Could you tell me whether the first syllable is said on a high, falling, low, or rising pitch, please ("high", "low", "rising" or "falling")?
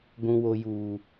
high